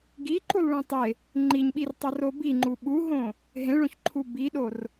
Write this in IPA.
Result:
ɡ i ǃ u lˠ ɭ ẽ tˤ e | ŋ͡ǃ i ɲ ɓ i r tˤ ʌ r o b i ŋ͡ǃ u ɓ u ɦ õ | ɦ ẽ ɭ õ ç ǃʰ u b i ɗ o r

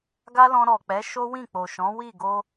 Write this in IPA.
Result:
ɡ a˦ l ɔ̃˧ ɾ ɔ˨ k͡p ɛ˨˦ ʃ o˦ w ĩ˦˨ k͡p o˨ ʃ ɔ̃˨˦ w i˦˨ ɡ o˧

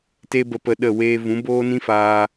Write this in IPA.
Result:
t e˦ b ə˧ p ə˧ ɗ ə˦˨ w eː˧ v ũ˨˦ b oː˦ n ĩ˦ f aː˧

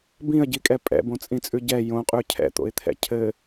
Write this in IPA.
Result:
b ĩ ə̯ ɟ i kʼ ɛ pʼ ɛ̰ b õ t͡sʼ ĩ t͡sʼ ʉ ɟ ɛ j õ qʼ ʉ cʰ ɛ̰ t̪ o̰ ɪ̯ t̪ʰ ɛ̰ cʰ ɘ

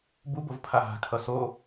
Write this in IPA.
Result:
b u b o v pʰ a ɦ a̤ kʰ ʌ s o

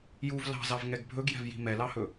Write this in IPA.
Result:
j u v l ɑ̤ z ɑ v ŋ ɛ ɡ bʱ ɵ ɡ j ɛ̤ v j i̤ m ɛ l ɑ h ɵ

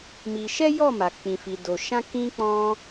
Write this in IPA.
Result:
m i˧ ʃ ɛ˦ j ɔ˦˨ m a˨ k͡p ĩ˧ f i˧ d o˨ ʃ ã˧ k ĩ˧ k͡p ɔ̃˧

